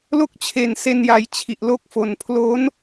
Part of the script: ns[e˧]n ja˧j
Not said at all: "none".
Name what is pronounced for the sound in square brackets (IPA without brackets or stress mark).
e˧